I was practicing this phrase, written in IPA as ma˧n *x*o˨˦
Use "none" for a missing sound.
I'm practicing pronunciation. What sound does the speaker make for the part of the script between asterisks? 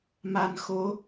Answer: x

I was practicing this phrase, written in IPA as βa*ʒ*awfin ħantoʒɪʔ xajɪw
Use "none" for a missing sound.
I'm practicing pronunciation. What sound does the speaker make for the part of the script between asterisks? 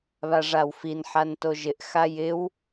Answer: ʐ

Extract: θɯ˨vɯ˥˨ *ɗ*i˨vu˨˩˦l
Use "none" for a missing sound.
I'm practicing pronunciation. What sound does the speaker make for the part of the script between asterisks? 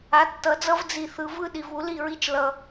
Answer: ɗ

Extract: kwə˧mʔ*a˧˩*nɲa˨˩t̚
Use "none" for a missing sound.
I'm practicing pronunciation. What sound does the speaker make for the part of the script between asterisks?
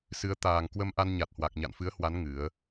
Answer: a˧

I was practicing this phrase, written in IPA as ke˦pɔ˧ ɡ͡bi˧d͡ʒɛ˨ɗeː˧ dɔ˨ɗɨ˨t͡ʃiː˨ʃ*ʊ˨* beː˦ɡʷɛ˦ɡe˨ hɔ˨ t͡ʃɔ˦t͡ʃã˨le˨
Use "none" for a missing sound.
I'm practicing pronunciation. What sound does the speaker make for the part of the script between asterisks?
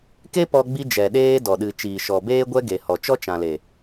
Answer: ɔ˨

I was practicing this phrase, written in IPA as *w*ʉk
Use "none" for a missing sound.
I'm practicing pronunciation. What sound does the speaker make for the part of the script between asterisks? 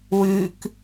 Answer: w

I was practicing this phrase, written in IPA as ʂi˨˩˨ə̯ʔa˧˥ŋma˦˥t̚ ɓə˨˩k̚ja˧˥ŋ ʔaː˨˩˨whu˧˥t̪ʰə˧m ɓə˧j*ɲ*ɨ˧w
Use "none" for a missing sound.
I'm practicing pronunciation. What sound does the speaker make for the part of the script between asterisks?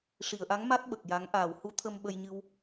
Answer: ɲ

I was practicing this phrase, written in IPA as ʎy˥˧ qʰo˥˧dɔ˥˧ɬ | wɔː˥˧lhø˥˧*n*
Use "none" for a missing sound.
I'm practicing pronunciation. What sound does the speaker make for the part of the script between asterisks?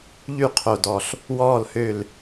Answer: l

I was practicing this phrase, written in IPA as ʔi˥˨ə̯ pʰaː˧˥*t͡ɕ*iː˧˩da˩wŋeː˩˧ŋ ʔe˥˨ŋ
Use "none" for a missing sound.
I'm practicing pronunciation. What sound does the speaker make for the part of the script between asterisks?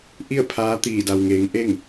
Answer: t̪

